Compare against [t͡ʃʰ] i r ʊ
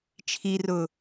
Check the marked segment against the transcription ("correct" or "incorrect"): correct